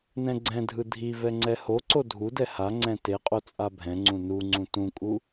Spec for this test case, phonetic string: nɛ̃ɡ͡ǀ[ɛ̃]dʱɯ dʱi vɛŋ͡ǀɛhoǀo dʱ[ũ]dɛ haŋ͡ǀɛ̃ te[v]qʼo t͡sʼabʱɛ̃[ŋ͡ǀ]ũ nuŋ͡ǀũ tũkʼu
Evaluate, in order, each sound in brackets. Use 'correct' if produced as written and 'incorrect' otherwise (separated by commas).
correct, incorrect, incorrect, correct